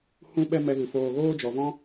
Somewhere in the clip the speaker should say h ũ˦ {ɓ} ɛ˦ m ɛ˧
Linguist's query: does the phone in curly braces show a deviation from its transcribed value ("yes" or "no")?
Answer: no